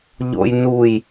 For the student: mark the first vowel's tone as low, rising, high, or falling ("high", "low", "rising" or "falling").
low